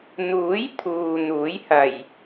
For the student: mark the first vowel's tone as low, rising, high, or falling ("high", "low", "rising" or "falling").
rising